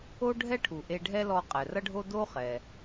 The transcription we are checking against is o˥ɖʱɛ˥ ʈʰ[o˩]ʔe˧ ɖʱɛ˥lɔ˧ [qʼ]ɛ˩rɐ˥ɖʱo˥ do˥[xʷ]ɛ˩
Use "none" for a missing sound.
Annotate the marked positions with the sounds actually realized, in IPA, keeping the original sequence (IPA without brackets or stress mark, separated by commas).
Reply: u˩, qʼ, χ